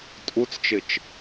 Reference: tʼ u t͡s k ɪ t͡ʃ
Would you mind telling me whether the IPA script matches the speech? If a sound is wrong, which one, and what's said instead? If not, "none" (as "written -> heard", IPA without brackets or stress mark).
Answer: k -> t͡ʃ